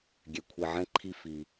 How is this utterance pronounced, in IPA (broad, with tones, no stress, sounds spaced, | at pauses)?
ɡʲ ɛ˨ kʷʰ i˨ ʕ ɛ̃˥ ǃʰ i˦ f i˨